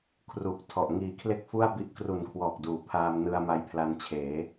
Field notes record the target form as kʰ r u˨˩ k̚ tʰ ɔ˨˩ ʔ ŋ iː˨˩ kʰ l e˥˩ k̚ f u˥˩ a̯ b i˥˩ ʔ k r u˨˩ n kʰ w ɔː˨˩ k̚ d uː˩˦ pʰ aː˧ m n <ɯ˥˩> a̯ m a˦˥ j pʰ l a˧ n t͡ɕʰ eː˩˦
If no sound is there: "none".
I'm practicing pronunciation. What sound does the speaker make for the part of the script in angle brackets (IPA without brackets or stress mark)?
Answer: ɯ˧